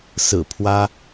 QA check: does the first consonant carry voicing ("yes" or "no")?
no